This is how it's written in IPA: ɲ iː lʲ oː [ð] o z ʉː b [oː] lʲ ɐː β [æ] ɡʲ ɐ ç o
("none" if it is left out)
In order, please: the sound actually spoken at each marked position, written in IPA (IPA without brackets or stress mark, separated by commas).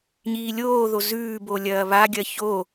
ð, o, a